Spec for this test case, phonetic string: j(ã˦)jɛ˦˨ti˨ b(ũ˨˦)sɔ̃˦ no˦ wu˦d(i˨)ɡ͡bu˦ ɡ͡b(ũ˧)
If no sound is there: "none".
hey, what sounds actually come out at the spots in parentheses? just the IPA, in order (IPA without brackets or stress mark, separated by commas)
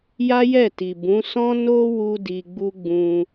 a˦, ũ˨˦, i˧, ũ˧